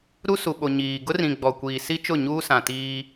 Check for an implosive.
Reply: present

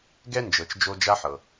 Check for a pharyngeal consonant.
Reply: present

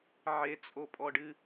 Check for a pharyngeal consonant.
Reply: present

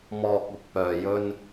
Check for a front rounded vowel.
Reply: present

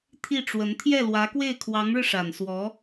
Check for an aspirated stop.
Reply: present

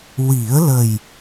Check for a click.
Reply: absent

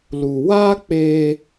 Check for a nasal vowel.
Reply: absent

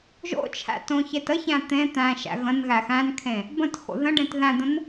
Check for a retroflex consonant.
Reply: present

